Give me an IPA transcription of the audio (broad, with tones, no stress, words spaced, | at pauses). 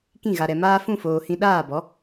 kĩ˦˨ ɣa˨ɾɛ˨ maː˧fũ˦˨ foː˧hĩ˦ ɗaː˦˨bɔ˨˦